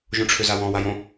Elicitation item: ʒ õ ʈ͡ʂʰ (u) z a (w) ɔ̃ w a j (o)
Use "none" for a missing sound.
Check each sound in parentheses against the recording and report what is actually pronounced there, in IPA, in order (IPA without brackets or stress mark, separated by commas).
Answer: ø, w, õ